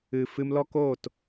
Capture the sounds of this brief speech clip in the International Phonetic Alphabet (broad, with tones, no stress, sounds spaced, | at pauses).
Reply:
ɨ˨ f ɨ˧ m l ɔ˦ k oː˦˨ t